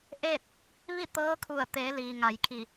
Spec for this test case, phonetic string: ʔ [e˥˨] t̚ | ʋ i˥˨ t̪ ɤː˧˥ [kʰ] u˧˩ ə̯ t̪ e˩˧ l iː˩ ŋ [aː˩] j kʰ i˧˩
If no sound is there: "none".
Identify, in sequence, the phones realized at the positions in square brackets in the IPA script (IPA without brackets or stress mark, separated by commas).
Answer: e˥˨, kʰ, a˩